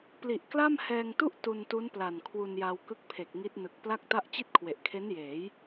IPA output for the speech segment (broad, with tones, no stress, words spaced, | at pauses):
pli˨˩ʔkla˥˩mhɛː˧ŋtu˥˩ʔ tu˧ntu˦˥n pla˨˩nkʰwu˧nja˧w kɯ˦˥k̚pʰe˨˩k̚ ŋi˦˥t̚nɯ˨˩k̚ pla˥˩k̚ta˥˩ʔ t͡ɕi˥˩t̚kʰwe˨˩ʔkʰe˦˥njeː˩˦j